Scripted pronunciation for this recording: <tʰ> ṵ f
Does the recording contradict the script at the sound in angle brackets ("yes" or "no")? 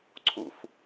yes